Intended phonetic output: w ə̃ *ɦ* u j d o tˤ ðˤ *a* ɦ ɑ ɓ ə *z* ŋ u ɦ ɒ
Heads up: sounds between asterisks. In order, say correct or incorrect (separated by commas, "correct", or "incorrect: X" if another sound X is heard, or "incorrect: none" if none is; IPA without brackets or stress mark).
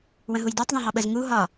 correct, incorrect: ã, correct